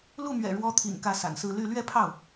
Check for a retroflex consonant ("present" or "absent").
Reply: present